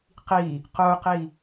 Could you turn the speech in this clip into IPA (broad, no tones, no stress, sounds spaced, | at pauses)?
q i | q o q i